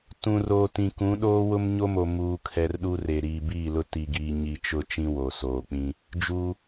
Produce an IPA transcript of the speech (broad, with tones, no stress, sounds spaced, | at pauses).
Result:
t ũ˨ r oː˨ t ĩ˨ k ũ˨˦ ɗ oː˦ w ʊ˦ m ɲ o˦ m o˨ m uː˨ kʰ ɛ˨ r ɗ u˦ r e˨ ɾ iː˨ b iː˦˨ l ʊ˦ t i˨ ɡ iː˨ ɲ i˨ t͡ʃ ʊ˦˨ t͡ʃ ĩ˦ w o˨ s oː˨ k͡p ĩ˦ | d͡ʒ uː˦